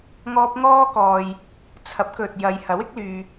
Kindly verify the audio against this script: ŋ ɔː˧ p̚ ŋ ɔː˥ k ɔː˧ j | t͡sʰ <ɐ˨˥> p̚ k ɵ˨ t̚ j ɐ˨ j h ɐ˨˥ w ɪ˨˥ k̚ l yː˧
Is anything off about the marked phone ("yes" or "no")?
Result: no